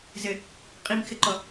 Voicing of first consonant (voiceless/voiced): voiced